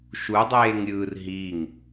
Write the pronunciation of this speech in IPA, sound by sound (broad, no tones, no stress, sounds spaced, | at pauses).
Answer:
ʃ u dˤ eː ŋ ɾʲ ɯ r ɦ i ŋ